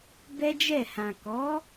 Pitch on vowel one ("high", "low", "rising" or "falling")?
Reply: high